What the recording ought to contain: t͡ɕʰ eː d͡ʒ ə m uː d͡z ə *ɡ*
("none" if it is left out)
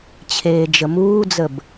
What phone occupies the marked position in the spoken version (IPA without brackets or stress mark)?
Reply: b